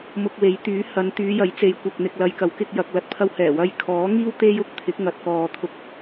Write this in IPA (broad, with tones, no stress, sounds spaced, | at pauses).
m ʊ˧ k̚ w e˨˥ j t̪ yː˨˥ h ɐ˨˧ n t̪ yː˨˧ j ɐ˨˥ j t͡s e˨˧ j kʷ ɐ˨ k̚ n̪ ɪ˨ k̚ l ɐ˨˧ j k ɐ˨˥ w k ɪ˧ k̚ j ɐ˨ k̚ l ɐ˨ t̚ pʰ ɐ˧ w h ɛː˨˩ w ɐ˧ j kʰ ɔː˨˥ ŋ iː˥ w t̪ e˥ j ʊ˥ k̚ t̪ʰ ɪ˨˥ k̚ ŋ ɐ˨ t̚ k ɔː˨ t̪ʰ ʊ˧ k̚